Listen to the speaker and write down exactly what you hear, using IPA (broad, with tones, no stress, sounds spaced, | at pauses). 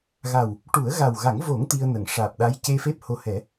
ɣ a˨˩ w | ʈ u˨˩˦ ə̯ ɣ a˨˩ w ɣ a˨˩˦ ŋ v o˨˩˦ ŋ t̪ i˧ ə̯ n ə˨˩˨ ŋ ʂ aː˨˩ p̚ ɗ a˧˥ j c e˧ f e˦˥ p̚ h o˧ h ɛ˨˩˦